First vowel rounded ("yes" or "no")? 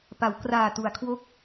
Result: no